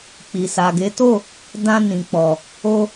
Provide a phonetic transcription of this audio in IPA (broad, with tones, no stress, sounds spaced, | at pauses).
k͡p i˨ s a˨ ɡ e˨˦ t o˦˨ | d ã˧ n ĩ˨ k͡p ɔ˨ | o˧